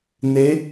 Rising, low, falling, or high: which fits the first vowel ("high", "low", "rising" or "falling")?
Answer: rising